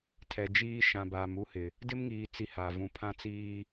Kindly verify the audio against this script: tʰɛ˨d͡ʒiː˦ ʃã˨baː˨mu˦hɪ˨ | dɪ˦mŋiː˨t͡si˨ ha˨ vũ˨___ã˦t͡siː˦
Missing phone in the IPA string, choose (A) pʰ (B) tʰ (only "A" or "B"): A